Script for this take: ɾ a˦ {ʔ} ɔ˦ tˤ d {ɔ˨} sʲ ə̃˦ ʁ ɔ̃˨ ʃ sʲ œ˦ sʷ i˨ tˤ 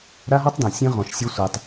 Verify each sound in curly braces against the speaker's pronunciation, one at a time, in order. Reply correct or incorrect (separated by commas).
incorrect, incorrect